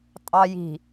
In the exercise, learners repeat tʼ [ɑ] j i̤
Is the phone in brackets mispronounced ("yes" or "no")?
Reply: no